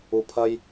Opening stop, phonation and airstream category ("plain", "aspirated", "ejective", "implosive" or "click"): aspirated